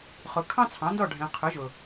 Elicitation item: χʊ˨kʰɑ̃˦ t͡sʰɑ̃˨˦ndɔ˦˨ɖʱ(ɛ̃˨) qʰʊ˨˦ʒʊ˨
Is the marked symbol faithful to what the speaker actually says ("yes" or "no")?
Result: yes